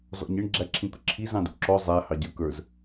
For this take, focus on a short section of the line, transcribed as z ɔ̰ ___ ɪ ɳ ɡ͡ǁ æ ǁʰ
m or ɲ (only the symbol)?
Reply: ɲ